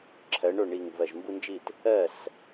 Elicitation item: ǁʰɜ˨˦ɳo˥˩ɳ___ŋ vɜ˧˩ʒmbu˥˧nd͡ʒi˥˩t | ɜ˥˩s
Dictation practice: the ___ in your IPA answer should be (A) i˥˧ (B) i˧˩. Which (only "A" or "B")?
B